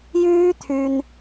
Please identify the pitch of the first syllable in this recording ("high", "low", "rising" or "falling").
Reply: high